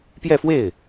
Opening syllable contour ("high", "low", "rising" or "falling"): falling